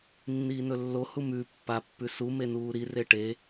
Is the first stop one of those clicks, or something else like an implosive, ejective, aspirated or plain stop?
plain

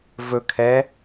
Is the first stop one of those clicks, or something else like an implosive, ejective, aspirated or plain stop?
aspirated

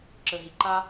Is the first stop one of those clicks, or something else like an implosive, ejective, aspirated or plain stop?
click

